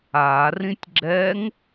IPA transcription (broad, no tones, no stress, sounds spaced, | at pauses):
a r ĩ tʲ ɡ͡ǁ ɛ ŋ